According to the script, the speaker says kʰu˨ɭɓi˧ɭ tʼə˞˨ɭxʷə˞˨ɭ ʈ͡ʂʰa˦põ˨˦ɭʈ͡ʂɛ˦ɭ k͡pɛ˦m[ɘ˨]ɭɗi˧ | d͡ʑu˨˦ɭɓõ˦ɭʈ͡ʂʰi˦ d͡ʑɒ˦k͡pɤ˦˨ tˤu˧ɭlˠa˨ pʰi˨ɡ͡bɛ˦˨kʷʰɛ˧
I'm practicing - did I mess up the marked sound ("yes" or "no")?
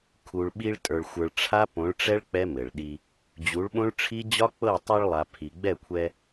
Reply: no